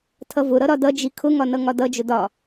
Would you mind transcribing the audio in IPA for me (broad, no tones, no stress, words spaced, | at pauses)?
tʰʌvʊɾʌ ɾɒdʌd͡ʒi kʰʊŋɒ nʌŋɒdʌd͡ʒʊ dɒ